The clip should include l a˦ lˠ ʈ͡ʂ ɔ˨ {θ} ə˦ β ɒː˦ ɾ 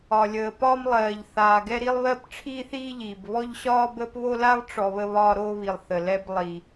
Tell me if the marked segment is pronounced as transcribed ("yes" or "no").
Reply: no